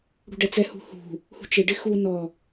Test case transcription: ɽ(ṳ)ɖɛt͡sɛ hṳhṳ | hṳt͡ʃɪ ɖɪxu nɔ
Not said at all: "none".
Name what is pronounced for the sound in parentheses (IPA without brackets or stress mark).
ṳ